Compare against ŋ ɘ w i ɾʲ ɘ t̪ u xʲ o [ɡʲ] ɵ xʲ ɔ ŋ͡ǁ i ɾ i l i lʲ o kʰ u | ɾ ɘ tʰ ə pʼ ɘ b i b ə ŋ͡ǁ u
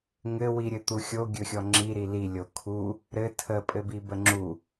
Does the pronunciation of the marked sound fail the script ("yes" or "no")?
no